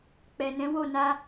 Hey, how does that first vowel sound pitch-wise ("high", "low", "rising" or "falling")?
low